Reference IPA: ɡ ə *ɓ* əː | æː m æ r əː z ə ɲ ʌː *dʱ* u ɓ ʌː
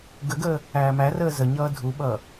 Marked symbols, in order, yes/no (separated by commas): no, yes